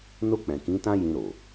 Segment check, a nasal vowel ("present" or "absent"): present